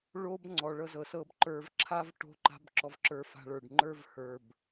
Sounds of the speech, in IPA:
ɭ o˦ b ŋ͡ǀ ɔ˧ ɭ ɤ˦ z ɤ˧ s ɤ˦ b ǃ ə˞˧ v ǁʰ a˦ v ʈ o̤˦ ǃ a̤˦ b ǁ ɔ˧ v ǁ ə˞˧ f a̤˧ ɭ ə˞˨ ɖ ŋ͡ǃ ə˞˦ v h ə˞˨ b

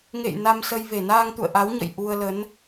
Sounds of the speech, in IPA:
ŋ ḛ˧˨ j n a˧ m s ə˧ j v e˧˩ n aː˧ ŋ t̪ ṵ˧˨ ə̯ ʔ a˨˦ w ɲ ə̰˧˨ j ʔ u˧ ə̯ l ə˨˦ n

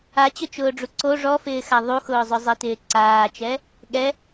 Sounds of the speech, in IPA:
a t͡ɕ ʊ t͡ʃ ʊː ɖ͡ʐ u ǀ o ʐ ɔ f ɪː x a ðˤ u x ʊː zˤ ʊ zˤ i t ɪː ǀ aː t͡ʃ ɛ | ɠ ɛ

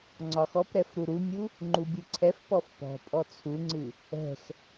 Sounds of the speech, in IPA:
ŋ͡ǀ ɒ x ɔ p ɾ ɛ f ɾ u ɾ u mʲ u | ŋ͡ǃ u bʲ ɨ ǀʰ ɛ f p ɔ f p ɔ̤ pʼ ɔ t͡sʰ u ŋ͡ǀ ɨ | ɛ̤ x

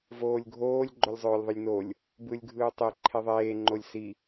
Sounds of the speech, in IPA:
v oː lʲ ɡʱ oː lʲ ɡ͡ǃ o lʲ zˤ øː lʲ ðˤ ɯ lʲ n o lʲ | b ɯ lʲ ɡʱ ɯː tˤ e ǃʰ e ðˤ eː ŋ͡ǃ o lʲ s i

